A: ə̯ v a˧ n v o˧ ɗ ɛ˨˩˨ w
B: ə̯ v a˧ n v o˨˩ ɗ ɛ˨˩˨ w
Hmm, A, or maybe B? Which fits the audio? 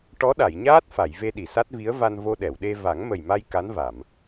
A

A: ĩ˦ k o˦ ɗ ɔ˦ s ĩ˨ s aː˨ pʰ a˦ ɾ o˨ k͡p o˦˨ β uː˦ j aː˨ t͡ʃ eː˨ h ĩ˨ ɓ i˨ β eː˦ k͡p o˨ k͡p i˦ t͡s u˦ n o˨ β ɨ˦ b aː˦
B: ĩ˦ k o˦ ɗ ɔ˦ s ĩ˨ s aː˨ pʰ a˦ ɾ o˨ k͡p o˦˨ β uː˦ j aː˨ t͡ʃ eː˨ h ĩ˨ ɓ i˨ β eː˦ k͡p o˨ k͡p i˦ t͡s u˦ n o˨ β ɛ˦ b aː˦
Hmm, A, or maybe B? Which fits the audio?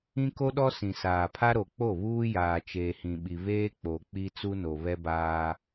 B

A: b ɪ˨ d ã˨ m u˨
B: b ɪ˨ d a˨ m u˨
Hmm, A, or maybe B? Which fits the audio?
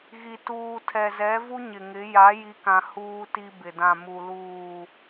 A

